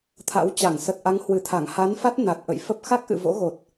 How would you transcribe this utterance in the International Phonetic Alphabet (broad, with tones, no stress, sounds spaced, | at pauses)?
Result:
t̪ʰ a̰˧˥ w t͡ɕ a˧˩ ŋ s ə˨˩ t̚ ʔ a˨˦ ŋ h w ɨ˨˩ t̪ʰ a˧˩ ŋ h a˨˦ n f a˦˥ t̚ n a˨˩ t̚ ʔ ə̰˧˨ j f ə˦˥ p̚ x a˦˥ k̚ ʔ ɨ̰˧˨ v o̰˧˥ ɣ o˨˩ t̚